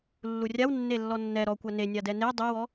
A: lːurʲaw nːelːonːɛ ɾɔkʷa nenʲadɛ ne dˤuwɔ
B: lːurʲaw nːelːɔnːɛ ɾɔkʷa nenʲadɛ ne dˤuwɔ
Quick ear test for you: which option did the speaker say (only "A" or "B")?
B